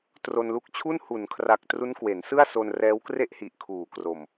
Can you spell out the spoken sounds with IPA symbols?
t r o˧ n l u˦˥ k̚ t͡ɕʰ u˥˩ n h u˩˦ n kʰ r a˨˩ k̚ t r u˦˥ n k w e˩˦ n s ɯ˥˩ a̯ s o˧ n r ɛː˦˥ w k r e˥˩ ʔ h i˨˩ ʔ kʰ uː˩˦ k r o˨˩ m

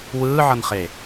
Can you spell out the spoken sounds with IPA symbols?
w ɯː ʕ ʌ n χ e

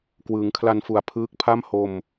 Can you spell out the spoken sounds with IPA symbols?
k w ɯː˩˦ ŋ kʰ l a˧ n f u˨˩ a̯ pʰ ɯː˦˥ k̚ pʰ a˥˩ m h o˧ m

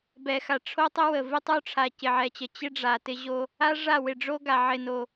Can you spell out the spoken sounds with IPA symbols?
b ɛ˨ x a˨ ʈ͡ʂʰ o˦ tˤ ə˦ w ə˨ v ɪ˦ tˤ o˦ ʈ͡ʂʰ a˨ c ɪ˨ ʕ ɛ˨ t͡ɕ ə˨ t͡ɕ ɪ˦ ɖ͡ʐ a˨ t ɪ˦ ʑ o˦ | a˦ ʐ a˦˨ w ɪ˨ ɖ͡ʐ o˦ ɡ a˨ ʕ ɪ˨ n o˨

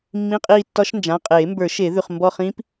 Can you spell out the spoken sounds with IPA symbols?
mː ĩ˧˥˧ qʼ iː˦˨ tː ɒ˦˥ ʃ n d͡ʒ ã˩˧˩ qʼ eː˨˩˦ m b ə˞˨˩˦ ʃ e˨˩˦ ð ʉ˩˧˩ χ m b ɔ˦˨ χ ĩ˦˥ p

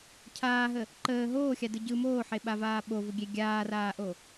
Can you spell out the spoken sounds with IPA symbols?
cʰ aː ɦ ə | ǃ əː ɦ oː xʲ a d ɯ ɟ ɯ m oː ħ e ɓ a v aː ɓ o v ʊ ɡʲ e ɡʲ aː r aː ʔ o

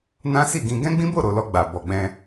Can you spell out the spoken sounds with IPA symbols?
n ã˦ s i˦˨ ɡ ĩ˧ ɡ ɛ̃˦ ɡ͡b ĩ˦ b o˦˨ ɾ o˨ l ɔ˨ ɡ͡b a˨ b ɔ˨ ɡ͡b ɛ̃˧

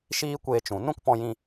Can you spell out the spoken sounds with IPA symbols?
ʃ iː˦ kʷ eː˧ t͡ʃ ũ˨ n ũ˦ k p ɔ̃˧ j ĩ˧

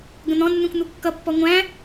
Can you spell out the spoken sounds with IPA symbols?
ɡ ə̃ n̪ ɔ̃ nː ũ k n̪ u kː ʌ pː ɔ ŋʷ æ̃

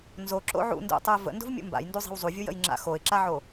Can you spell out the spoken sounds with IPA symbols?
n z o ǁ o̰ ʕ ṵ n d ṵ tˤ u ɪ̯ v ə̰ n d o̤ v mʲ ṵ m b a̰ j n d u zˤ i̤ w zˤ u vʲ u j ə̰ j ŋ͡ǁ a̰ x o ɪ̯ ǁ a ʕ o

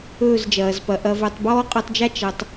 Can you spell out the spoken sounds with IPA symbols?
ɵː˦˨ z d͡ʒ ɐː˨ z p ɐ˨ ʔ ɐ˨ v ɵ˨ tˤ b ɔː˦ qʼ œ˧ tˤ d͡ʒ a˦ t͡ʃ ɐ˨ tˤ

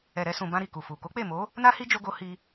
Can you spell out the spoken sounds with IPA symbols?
ɛ˨ ɾ ɛ˧ s ũ˨ b ã˧ ɾ i˨ k u˨ f u˨ k o˨˦ k͡p e˦˨ m o˨˦ | n a˦ h i˦ d͡ʒ o˦ ɡ o˦ h i˧

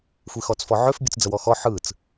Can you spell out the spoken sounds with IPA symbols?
xʷ i x ɔ t͡s f ɔ ʕ ø f bʲ ɨ t͡s d͡z ə w ɔ x ɔ ħ ɯ t͡s

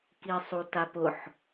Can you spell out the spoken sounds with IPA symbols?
k i sˤ u t a p ʊ ħ

